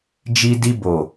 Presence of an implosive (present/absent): absent